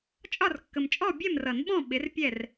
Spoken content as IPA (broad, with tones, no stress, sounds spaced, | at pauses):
t͡ʃʼ ɒ˥˨ r kː ə˨ m t͡ʃʼ ɔ˥˨ bʲ ɛ˥˨ m r ʌ˨˩˦ n ɓ ɔ̃˥˨ ɓ ɪ˨˥ r pʲ ɛ˥˨ r